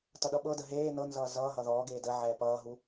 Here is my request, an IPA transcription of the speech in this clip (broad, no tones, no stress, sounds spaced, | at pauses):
t ʌ ɗ ʌ ɓ ɤ d ə ɦ eː n ɤ n z ʌː z ʌː ɦ ʌ ð ɔː ɡ eː d ə ʕ ɛː p ʌː ɦ u